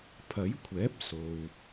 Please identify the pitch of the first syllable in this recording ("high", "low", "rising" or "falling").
rising